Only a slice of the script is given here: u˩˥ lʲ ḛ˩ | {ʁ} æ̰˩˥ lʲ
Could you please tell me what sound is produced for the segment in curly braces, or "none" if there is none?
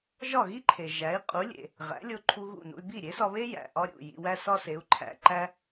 ʁ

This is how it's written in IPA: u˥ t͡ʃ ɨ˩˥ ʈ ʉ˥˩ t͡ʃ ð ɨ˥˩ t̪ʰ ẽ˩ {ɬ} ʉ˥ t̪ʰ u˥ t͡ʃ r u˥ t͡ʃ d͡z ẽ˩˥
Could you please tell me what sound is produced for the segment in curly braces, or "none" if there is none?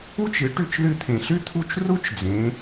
ɬ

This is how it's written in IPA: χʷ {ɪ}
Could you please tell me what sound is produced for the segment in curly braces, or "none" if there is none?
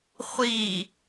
i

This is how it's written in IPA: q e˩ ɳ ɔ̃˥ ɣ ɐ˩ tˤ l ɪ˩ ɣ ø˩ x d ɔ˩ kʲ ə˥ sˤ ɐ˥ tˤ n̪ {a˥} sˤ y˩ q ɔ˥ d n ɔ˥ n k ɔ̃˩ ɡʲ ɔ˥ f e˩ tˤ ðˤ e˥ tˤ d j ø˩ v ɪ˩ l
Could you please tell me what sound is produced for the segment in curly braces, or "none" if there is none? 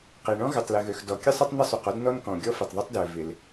ə˥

